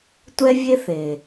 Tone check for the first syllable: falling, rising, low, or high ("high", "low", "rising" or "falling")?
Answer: high